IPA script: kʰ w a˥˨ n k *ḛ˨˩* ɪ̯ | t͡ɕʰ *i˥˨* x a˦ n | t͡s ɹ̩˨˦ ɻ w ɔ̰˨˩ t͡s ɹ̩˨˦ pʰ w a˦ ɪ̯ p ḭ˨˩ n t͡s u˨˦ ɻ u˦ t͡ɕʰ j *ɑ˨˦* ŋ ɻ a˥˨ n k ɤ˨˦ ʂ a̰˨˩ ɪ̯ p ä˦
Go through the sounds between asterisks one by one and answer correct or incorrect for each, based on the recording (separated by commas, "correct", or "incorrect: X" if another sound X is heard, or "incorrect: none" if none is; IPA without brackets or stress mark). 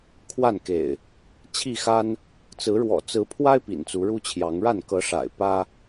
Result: correct, correct, correct